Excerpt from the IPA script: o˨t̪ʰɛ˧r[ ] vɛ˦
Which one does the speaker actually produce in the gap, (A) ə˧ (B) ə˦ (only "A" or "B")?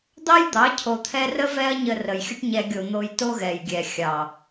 B